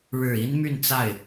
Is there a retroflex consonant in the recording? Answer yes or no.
yes